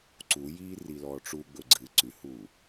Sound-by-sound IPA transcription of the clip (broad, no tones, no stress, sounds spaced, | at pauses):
ǀ u j iː r i l ɔː ʈ͡ʂ u ɡ͡b ɵ ɡ͡ǀ ɨ ǀ ʉ h uː